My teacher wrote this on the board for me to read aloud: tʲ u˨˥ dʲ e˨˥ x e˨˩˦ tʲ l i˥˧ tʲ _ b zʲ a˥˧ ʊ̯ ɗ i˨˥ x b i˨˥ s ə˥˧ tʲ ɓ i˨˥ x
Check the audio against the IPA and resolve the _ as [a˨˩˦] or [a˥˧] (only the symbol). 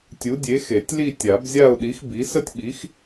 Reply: a˨˩˦